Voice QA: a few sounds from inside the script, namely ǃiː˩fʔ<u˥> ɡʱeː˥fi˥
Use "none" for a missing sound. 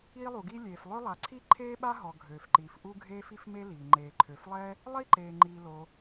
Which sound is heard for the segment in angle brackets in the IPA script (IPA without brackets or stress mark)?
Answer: u˥